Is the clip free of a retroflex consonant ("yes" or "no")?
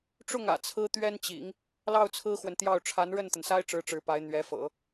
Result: no